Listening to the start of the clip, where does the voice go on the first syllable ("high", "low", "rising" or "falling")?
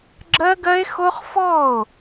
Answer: high